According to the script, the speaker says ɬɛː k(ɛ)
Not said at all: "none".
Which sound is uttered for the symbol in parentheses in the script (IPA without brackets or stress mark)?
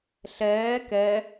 ɛ